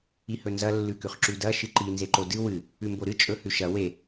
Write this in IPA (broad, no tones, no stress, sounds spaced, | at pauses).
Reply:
i h ɵ n z ɐ lː ʉ k ʉ χ ǁ ʉ d ɐ ʃ ɨ ǃ i n z e ǃ o d ɨ w ɨ | ʉ m b o ɾ ɨ t͡ʃʼ ɵ h ʉ ʃ ɐ w e